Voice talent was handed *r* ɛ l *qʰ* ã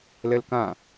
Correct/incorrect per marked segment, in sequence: incorrect: l, incorrect: k

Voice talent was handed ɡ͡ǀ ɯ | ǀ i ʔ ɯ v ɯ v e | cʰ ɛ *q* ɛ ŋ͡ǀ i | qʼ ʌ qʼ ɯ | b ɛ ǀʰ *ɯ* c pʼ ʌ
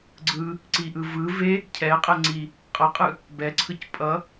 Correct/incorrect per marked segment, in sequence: incorrect: qʼ, correct

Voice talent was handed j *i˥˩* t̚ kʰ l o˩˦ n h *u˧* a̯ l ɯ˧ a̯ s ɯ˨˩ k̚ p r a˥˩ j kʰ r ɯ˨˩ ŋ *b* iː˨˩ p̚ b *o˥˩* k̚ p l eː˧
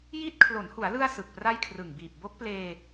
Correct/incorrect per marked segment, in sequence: correct, incorrect: u˩˦, correct, incorrect: o˦˥

